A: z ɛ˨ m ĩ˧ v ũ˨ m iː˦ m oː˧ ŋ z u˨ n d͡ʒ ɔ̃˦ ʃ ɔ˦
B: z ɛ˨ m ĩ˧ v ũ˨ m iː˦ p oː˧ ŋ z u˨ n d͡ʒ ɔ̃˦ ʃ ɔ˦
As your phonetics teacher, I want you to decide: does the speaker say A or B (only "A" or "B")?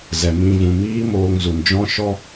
A